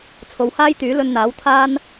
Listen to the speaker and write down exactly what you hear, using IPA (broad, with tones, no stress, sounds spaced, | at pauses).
t͡sʰ o˨ w h aː˥ j t̪ yː˨˥ l ɵ˧ n n̪ aː˨˥ w t̪ʰ aː˥ n